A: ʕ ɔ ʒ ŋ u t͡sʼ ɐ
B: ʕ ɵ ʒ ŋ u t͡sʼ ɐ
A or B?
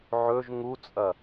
B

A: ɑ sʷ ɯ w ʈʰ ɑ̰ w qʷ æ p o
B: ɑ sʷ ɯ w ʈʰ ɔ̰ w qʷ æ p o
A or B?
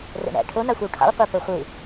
A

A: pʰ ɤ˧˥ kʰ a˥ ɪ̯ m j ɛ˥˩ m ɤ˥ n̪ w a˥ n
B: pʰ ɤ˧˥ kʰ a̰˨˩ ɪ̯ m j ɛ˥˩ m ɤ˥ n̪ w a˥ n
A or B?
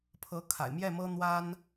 B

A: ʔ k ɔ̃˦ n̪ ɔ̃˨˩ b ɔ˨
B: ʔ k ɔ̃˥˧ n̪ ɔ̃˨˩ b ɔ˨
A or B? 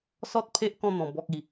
B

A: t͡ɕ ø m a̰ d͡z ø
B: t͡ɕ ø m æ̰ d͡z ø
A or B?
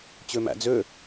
B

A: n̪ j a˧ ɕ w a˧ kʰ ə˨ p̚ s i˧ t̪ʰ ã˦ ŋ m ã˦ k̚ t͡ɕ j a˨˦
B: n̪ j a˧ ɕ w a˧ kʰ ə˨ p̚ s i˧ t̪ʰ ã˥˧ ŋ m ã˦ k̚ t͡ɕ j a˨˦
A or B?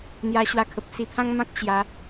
A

